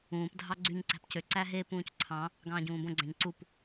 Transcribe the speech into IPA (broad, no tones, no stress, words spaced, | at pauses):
ũːp dʱɑɡ͡ǀyɲ ǀæ̤pcø ǀæɦe pũːcǀʰɑ̃ | ɡɑ̃ːɟũːbõ ɡ͡ǀæ̃ɲǀup